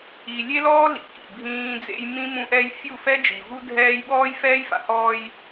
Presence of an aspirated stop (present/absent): absent